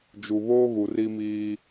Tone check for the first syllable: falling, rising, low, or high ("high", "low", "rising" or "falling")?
low